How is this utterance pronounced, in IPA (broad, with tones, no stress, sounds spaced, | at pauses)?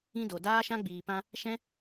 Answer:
ĩ˧ d o˨ d aː˦ ʃ ã˦ ɡ͡b iː˨ p ã˧ | ʃ ɛ̃˦